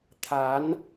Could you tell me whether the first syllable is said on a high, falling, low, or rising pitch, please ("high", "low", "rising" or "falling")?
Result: rising